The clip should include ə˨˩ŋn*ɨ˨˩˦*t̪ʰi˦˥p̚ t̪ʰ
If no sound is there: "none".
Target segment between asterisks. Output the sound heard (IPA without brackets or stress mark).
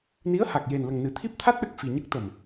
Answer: ɨ˨˩˦